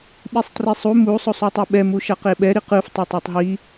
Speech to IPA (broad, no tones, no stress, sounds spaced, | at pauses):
ɓ i sˤ t r i sˤ u m u sˤ o sˤ u tˤ ɛ ɓ ɛ m u ʃ a q e ɓ ɛ ɾ i q ɯ f tˤ o tˤ a tˤ ɦ i